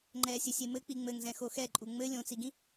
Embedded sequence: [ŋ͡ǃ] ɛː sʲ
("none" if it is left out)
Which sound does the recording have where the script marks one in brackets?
ŋ͡ǃ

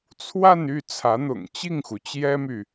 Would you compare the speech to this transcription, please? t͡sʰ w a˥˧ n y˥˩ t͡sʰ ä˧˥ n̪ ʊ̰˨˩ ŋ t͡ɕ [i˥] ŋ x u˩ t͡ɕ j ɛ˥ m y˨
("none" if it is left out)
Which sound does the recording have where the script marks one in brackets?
i˥˩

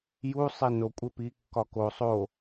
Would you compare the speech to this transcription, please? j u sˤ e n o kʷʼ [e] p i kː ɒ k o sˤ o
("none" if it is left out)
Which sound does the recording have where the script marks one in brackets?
e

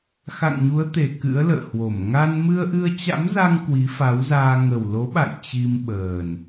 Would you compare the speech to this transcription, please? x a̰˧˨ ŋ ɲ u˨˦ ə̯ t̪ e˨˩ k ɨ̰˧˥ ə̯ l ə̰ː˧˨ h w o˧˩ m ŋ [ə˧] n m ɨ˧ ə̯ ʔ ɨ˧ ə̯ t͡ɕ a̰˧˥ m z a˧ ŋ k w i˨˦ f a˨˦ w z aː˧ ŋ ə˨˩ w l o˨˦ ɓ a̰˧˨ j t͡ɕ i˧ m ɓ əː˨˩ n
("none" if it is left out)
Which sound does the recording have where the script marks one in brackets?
a˧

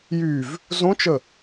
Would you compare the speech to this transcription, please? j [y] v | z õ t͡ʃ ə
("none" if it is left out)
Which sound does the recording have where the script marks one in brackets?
y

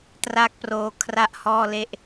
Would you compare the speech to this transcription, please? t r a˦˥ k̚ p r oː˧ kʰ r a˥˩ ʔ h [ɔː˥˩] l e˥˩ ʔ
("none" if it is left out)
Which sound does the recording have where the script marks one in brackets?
ɔː˥˩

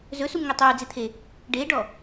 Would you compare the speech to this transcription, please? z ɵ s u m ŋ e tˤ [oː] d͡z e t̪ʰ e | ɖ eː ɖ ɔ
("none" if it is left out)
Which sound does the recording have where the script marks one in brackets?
uː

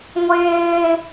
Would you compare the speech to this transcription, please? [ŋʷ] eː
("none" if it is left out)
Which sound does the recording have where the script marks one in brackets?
ŋʷ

